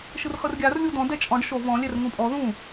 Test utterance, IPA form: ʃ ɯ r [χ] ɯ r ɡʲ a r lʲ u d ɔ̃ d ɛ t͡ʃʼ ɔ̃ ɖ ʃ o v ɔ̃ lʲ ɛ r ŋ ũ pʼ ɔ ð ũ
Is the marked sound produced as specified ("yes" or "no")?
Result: yes